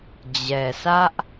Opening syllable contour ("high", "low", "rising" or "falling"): low